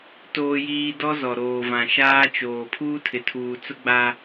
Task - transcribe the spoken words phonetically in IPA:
t oː˦ j iː˦ d ɔ˦ z ɔ˨ ɾ oː˨ v ã˨ ʃ aː˦ t͡ʃ oː˨ pʰ uː˦ tʰ ɪ˨ tʰ uː˨ t͡s ʊ˦ ɡ͡b a˦

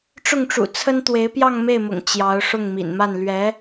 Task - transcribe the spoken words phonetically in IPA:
ʈ͡ʂ ʊ˥˩ ŋ ʈ͡ʂ ṵ˨˩ t͡sʰ ə˥ n t̪ w e˧˥ ɪ̯ p j ɑ˥˧ ŋ m e˥˩ ɪ̯ m ʊ̰˨˩ ŋ t͡ɕ j ɑ˧˥ ʊ̯ ʂ ʊ˥˩ ŋ m ḭ˨˩ n m a˥˩ n l ɥ ɛ˧˥

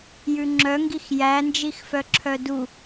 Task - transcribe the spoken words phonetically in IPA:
j ʉ ŋ͡ǁ œ ŋ ɡ i x j æ n d͡ʒ i x f œ ǁʰ œ d u

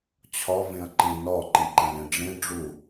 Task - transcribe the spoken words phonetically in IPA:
t͡ɕʰ ɒ v ẽ ɐ̯ ǃ ẽ n ɒ ǃ ĩ ǃ æ̃ ɾ ẽ ɖ͡ʐ ẽ ɖ͡ʐ u

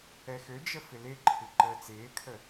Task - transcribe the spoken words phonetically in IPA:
ɛ x ø d͡ʒ ə f ɪ l ɪ ǃʰ ɨ ǃ əː t͡s ɪː kʰ ə

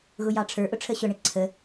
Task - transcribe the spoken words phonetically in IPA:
ɣ ʊ j ɑ ʈ͡ʂʰ ə˞ ʔ ʊ ʈ͡ʂʰ ə ɕ ʊ ɳ ɪ ǀʰ ə

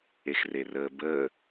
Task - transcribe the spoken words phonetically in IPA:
e x r e r əː b əː

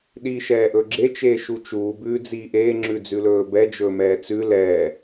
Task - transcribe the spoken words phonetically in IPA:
ɗ i ʃ ɛː ʔ ɵ ɡ͡ǁ e t͡ʃ eː ʃ u t͡ʃ uː b ʉː d͡z iː ʔ eː ŋ͡ǁ ʉ d͡z ʉ l ɵː b ɛ d͡ʒ ɵː m ɛː t͡s ʉ l ɛː

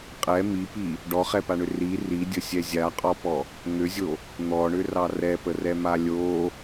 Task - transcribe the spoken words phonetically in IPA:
qʼ ɛ m i p i | ɖ ɔ χ ɛ p a ɳ ʏ r i r i dʲ ə sʲ ɛ zʲ a qʼ ɔ p ɔ | n̪ ʏ zʲ o | n̪ ɔ ɳ ʏ r ɑ r ɛ p ə r ɛ m a lʲ o

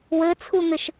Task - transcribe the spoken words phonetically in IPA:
w ɘ t͡sʰ u n̪ ɪ ʃ

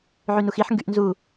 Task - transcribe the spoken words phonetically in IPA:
ʕ y n u x i ħ ŋ ɡ y ʔ n z u

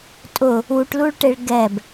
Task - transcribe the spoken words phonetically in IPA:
tʼ ʊ | u ʈ l u ɭ ʈ e ɭ ɡ ɛ b

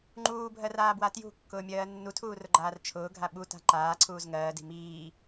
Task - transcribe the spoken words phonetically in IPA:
ŋ͡ǃ uː bʱ ɜ r aː b w a t j ṳ kː ʊː mʲ ɜː nː u tʰ uː r ʊ ɡ͡ǃ aː r t͡ʃʰ ʊː ɡʱ a ɓ u t a̤ ǃ aː ǀʰ uː z ŋ ɜː d i̤ m iː

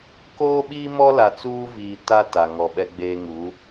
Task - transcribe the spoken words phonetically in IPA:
k oː˦ ɓ iː˦ m ɔ˦ l a˨ t͡s uː˦ v iː˨ t a˦ t a˨ ŋ ɔ˨ ɓ ɛ˦ ɡ͡b eː˦ ŋ u˨˦

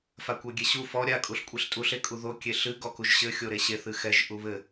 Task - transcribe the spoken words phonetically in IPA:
f a kʷ ɛ ɡʲ e ɕ u f ɔ ɾʲ a kʼ u ɬ kʷʼ e ɬ tʼ u ɬ e kʼ u ð o kʲ e ɬ ɨ ɡ ɔ k u ʒ ɕ ɘ xʲ o ɾ e ɕ e θ ɨ x ɛ ʒ ʔ u β ɘ

